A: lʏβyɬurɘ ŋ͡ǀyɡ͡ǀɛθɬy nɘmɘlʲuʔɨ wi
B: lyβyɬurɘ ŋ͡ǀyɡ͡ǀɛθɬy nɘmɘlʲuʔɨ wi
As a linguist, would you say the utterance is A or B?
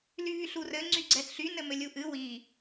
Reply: B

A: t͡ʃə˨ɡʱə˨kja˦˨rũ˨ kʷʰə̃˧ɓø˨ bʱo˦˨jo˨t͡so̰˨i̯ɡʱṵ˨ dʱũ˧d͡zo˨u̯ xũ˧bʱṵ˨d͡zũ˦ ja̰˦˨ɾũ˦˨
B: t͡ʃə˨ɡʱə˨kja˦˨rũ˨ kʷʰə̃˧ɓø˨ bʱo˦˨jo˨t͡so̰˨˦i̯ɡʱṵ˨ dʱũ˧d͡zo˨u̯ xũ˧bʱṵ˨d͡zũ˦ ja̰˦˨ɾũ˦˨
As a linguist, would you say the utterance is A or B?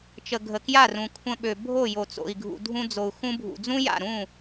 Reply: A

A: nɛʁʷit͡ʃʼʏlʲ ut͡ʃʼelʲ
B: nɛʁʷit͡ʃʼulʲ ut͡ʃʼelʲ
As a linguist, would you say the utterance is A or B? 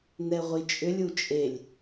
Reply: A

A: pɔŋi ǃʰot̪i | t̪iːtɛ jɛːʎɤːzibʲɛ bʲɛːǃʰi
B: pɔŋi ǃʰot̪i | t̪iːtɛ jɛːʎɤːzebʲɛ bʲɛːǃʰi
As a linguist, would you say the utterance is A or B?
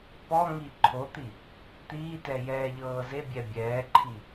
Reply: B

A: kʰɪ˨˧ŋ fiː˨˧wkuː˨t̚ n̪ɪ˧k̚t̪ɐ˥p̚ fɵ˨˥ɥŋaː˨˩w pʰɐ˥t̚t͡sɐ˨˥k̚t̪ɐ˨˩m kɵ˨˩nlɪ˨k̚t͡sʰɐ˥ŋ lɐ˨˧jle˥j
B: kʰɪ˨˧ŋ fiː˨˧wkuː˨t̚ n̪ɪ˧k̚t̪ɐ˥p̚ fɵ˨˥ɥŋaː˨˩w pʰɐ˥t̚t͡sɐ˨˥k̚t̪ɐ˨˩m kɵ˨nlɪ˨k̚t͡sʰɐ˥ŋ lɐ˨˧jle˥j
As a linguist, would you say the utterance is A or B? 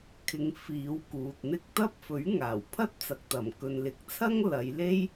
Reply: B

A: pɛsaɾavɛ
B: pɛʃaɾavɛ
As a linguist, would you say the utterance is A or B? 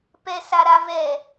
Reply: A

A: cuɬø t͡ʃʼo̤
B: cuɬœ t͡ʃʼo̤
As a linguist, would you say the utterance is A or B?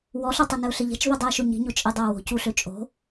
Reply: A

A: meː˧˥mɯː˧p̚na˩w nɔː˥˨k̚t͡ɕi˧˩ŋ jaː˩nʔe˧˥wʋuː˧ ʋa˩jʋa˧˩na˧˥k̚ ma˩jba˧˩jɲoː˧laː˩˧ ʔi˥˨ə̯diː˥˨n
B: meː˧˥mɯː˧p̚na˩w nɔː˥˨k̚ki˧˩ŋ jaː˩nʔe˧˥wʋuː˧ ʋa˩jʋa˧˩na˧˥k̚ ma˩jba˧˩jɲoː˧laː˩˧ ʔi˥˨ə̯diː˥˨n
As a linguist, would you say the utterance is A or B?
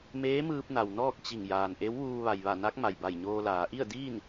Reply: A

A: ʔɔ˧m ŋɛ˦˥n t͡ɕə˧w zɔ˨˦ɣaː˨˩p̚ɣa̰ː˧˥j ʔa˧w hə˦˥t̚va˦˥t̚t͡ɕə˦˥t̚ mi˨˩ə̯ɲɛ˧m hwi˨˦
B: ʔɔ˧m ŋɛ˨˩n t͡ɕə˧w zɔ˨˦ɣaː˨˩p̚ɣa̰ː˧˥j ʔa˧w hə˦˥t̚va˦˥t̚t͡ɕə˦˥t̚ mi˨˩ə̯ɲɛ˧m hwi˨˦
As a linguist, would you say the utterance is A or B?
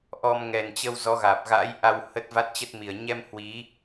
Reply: B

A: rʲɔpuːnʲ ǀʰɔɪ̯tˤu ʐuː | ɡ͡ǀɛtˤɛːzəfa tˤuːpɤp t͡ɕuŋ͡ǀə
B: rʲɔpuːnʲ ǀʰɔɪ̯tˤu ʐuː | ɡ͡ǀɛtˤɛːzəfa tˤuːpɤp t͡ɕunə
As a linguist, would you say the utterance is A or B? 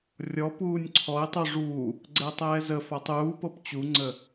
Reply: A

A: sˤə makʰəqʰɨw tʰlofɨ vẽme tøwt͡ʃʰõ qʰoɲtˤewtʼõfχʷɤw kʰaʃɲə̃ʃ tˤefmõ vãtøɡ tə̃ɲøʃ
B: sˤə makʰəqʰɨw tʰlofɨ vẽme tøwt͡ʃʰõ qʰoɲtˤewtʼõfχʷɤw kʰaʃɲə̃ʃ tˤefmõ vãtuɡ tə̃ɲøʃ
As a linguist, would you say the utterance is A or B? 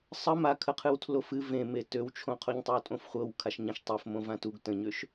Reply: B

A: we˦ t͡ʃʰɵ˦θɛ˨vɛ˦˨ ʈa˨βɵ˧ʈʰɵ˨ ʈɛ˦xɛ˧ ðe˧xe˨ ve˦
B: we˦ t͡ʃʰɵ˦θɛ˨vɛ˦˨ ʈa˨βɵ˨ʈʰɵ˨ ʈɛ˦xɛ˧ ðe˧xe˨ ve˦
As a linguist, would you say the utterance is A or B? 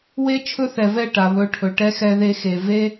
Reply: A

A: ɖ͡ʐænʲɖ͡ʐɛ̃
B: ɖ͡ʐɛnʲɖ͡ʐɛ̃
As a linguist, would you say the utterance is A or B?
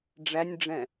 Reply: A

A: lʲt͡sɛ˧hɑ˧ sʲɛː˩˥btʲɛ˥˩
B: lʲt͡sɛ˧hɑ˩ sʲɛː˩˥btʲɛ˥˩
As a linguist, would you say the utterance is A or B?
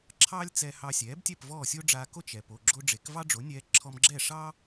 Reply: A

